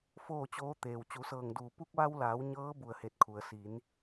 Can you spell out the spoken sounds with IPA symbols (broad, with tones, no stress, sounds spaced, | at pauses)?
f oː˥˨ t͡ɕ oː˧˥ t̪ eː˩ w t͡ɕ u˩˧ s ɤː˧˩ ŋ d uː˧˩ p u˧ k̚ ʋ a˧ w l aː˩˧ w ɲ ɤː˧˥ b u˧˩ ə̯ h e˧˩ t̚ kʰ u˩ ə̯ s i˩˧ n